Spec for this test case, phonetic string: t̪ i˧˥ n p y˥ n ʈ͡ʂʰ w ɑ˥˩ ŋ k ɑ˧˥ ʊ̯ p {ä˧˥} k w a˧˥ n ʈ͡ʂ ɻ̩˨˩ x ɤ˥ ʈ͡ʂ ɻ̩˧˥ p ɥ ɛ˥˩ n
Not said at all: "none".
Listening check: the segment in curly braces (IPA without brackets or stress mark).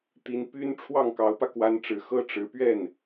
ä˧